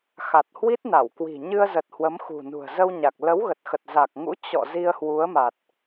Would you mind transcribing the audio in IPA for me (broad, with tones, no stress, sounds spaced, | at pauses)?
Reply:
x a˨˩ t̚ h w i˦˥ t̚ n a˧˩ w k w i̤˨˩ ɲ ɨ˧ ə̯ z ə˨˩ t̚ h w ə˨˦ m x ṳ˨˩ n ṳ˨˩ ə̯ z ə˧ w ɲ a˨˩ k̚ l ə˨˦ w ɣ ə˨˩ t̚ x ə˨˩ t̚ z a˨˩ k̚ ŋ ṵ˧˥ t͡ɕ ɔ̰˧˨ z i˧ ə̯ h w u˨˦ ə̯ m a˨˩ t̚